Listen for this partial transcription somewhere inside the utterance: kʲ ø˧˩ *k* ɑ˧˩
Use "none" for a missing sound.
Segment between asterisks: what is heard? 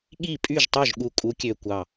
kʷ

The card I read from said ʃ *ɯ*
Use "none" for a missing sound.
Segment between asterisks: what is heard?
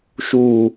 u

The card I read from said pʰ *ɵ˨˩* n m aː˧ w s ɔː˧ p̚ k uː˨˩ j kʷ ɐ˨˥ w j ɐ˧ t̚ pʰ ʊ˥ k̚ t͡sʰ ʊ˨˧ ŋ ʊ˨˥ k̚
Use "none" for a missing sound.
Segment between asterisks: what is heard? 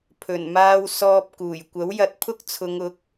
ɵ˨˩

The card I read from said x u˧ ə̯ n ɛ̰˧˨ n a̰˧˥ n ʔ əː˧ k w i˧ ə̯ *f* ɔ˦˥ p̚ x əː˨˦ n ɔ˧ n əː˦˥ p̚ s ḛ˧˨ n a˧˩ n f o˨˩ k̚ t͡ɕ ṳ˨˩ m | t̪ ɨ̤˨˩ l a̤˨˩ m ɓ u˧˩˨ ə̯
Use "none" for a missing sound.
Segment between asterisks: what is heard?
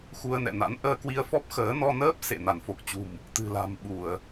f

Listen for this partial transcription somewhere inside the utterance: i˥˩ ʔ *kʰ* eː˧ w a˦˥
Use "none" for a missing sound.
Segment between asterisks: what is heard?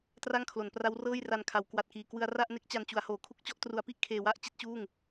kʰ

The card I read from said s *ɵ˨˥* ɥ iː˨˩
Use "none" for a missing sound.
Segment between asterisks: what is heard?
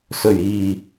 ɵ˨˩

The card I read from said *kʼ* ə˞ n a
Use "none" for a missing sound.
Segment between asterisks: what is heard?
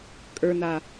kʼ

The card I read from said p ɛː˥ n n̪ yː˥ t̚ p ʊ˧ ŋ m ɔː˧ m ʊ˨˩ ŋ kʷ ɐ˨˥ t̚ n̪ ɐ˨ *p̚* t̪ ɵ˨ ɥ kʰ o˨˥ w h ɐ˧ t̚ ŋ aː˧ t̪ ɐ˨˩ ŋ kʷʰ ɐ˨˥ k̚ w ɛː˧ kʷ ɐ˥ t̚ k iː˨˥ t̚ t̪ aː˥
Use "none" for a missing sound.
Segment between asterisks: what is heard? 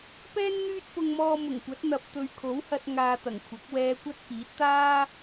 p̚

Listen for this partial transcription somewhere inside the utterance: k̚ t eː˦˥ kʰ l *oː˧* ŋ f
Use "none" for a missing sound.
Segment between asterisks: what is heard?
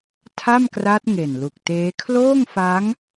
oː˥˩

